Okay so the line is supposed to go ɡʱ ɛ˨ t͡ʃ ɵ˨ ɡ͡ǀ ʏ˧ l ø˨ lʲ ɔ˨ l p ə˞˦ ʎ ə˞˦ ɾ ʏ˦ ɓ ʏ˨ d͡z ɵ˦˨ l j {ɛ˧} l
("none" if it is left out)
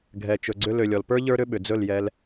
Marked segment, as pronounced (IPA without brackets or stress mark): ɛ˧